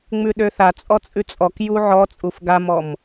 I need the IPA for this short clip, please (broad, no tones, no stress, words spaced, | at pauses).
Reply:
ŋ͡mʉɗøθa t͡sʼɔt͡sʼʉt͡sʼɔk juʕɔ t͡sʼufɡamɔm